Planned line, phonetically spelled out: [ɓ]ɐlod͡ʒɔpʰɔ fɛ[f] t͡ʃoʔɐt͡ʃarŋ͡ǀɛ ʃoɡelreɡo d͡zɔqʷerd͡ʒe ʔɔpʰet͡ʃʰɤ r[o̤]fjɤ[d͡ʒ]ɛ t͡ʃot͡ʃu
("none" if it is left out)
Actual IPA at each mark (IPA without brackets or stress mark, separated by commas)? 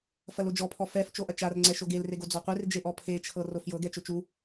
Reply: f, f, o, ɡ